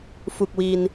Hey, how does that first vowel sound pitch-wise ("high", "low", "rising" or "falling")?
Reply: low